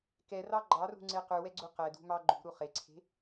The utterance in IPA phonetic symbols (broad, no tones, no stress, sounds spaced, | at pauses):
k ɛ r ɑ ɡ͡ǃ ɑ r ṳ ŋ͡ǀ e q ʉ w ɛ ɡ͡ǀ u q ɛ d ṳ m ɑ ɡ͡ǃ ṳ ɾ u χ e ǀʰ e̤